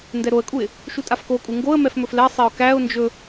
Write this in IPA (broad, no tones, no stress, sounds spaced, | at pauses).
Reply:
n d ɛ ɾ o ə̯ kʼ u ɪ̯ | ʃ u tʼ a f k o kʼ u ŋ ɡ o ə̯ m ɛ f m ɵ f l ɛ sˤ e ʊ̯ k æ ʊ̯ n d͡ʒ ɵ